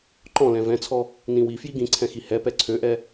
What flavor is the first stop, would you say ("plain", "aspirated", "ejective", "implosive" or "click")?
click